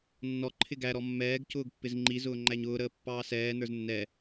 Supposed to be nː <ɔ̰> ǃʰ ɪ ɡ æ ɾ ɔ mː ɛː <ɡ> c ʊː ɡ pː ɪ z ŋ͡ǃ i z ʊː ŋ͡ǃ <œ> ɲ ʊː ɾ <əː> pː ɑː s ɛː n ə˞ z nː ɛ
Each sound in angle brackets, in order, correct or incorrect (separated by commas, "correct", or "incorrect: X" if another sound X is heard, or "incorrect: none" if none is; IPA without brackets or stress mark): incorrect: ɔ, correct, incorrect: æ, correct